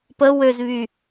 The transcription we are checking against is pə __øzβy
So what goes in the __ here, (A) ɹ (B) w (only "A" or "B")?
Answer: B